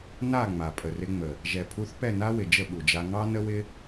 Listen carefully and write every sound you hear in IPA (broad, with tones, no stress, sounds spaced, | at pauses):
n a˦˨ ŋ͡m a˨ pʼ ə˨ r ɪ˧ ŋ͡m ə˨ | ʒ ɛ˨ pʰ u˧ θ p ɛ˦˨ n a˦ w ɪ˨ d͡ʒ ə˦˨ ɓ u˨ d͡ʒ a˧ ŋ ɑ˦ n ə˦ w ɪ˦